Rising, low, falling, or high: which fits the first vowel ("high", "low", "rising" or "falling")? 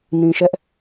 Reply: low